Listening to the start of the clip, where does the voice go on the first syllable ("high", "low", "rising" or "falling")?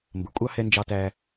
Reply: rising